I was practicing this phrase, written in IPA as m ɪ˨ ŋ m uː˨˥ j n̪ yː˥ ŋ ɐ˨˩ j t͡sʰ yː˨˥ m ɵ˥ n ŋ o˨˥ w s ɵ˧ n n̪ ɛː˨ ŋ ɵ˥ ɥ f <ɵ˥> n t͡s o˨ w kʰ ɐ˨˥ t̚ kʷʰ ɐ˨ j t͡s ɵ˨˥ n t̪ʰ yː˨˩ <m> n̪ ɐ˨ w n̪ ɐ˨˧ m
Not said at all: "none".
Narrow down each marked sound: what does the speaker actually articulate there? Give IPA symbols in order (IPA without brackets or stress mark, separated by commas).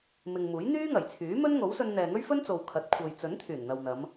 ɵ˥, n